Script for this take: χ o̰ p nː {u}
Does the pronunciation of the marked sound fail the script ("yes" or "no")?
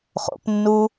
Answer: no